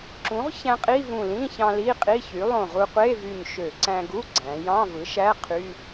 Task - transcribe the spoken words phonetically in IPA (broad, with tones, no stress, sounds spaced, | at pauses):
ǁ ũ˩˥ ʁ ç æ̃˧ qʼ i˧˥˧ v ũ˧˩ l ĩ˧˥˧ ç ɑ̃˧ l i˧˥˧ qʼ i˧˥˧ ç y˩˥ lˠ õ˧˩ ʁ u˧ qʷ e˧˥˧ v y˧˩ ɲ ʃ ø˧˩˧ ǀ æ̃˧ ɡ u˧˥˧ ɡ͡ǀ æ̃˩˧ j ɑ̃˧˥˧ v ɯ˩˥ ʃ æ˧˥˧ qʰ y˧˥˧